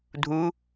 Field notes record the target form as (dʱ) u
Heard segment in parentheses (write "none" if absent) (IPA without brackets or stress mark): dʱ